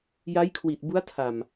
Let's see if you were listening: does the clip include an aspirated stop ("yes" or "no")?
yes